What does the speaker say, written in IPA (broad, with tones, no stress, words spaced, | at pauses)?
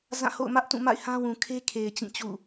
zã˦˨ho̰˦˨ʊ̯mä˦ʔ tũ˦˨ma̰˦˨ɪ̯ hã˦wũ˨kʰe˦ kʰe˨ɪ̯ t͡ɕĩ˦˨t͡ɕṵ˦˨